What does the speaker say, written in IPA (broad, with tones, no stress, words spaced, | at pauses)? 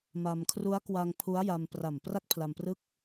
ma˧m kʰru˦˥a̯kwa˧ŋ pʰu˦˥a̯ja˧m pra˨˩m pra˥˩k̚pʰla˧mprɯ˥˩k̚